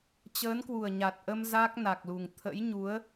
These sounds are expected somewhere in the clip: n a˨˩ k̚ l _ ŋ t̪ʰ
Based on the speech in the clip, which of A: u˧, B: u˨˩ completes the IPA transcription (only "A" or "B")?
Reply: B